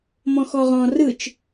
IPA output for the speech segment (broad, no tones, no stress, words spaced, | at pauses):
mɔ̃xɔʁɔ̃ rɯt͡ʃ